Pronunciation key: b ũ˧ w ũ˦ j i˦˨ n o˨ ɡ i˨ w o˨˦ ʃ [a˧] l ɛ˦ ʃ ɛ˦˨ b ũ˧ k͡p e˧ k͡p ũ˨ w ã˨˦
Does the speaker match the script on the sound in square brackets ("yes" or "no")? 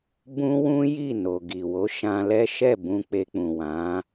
no